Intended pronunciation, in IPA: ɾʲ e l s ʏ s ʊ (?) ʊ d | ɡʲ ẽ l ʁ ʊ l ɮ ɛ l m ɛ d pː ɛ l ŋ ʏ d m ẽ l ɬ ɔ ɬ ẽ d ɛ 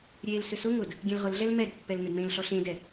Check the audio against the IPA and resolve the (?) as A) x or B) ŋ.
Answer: B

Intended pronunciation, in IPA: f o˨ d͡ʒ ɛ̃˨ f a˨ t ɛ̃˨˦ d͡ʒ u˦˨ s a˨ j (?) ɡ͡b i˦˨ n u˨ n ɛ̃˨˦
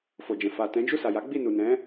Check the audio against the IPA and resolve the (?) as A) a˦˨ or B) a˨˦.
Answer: B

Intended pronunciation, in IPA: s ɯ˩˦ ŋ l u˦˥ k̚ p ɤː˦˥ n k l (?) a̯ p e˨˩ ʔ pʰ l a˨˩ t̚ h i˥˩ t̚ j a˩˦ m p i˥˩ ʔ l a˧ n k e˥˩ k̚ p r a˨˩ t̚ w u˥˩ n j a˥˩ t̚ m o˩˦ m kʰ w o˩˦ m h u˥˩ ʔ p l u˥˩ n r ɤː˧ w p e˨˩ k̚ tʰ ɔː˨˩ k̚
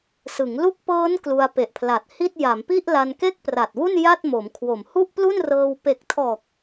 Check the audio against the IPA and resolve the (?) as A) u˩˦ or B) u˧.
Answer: B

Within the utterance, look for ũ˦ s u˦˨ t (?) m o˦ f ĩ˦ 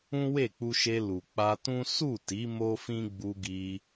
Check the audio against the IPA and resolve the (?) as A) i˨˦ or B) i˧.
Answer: A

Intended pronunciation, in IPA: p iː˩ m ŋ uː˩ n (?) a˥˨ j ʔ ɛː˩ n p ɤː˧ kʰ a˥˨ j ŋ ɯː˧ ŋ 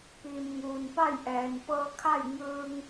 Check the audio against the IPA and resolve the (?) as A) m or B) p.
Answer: B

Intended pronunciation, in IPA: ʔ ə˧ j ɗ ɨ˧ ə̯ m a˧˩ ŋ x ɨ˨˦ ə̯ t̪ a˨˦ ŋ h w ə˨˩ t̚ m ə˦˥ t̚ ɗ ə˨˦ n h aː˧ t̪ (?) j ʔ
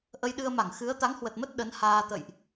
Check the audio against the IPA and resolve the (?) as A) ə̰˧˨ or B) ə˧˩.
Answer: A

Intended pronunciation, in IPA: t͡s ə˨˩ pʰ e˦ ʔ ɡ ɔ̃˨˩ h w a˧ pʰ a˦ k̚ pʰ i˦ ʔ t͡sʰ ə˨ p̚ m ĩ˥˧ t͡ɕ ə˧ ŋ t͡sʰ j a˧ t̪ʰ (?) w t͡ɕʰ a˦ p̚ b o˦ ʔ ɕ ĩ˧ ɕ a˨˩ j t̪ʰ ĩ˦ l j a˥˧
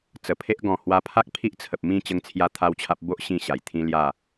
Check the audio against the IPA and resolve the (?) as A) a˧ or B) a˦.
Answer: B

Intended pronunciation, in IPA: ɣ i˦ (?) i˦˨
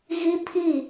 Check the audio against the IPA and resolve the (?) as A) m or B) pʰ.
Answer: B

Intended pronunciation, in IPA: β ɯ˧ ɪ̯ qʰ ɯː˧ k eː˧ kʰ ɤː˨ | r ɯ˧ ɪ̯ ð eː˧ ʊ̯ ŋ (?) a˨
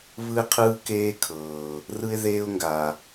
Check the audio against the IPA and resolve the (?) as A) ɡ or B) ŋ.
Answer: A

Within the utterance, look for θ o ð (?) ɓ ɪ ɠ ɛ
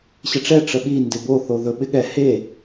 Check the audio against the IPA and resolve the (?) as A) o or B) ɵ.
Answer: B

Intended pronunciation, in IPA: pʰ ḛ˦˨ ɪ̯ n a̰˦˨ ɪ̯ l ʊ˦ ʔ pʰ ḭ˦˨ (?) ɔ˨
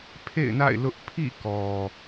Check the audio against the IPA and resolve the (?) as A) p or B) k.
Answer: B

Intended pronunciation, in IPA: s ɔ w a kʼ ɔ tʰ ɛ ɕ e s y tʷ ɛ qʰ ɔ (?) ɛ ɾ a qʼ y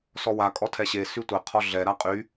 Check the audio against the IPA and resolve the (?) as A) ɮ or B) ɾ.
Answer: A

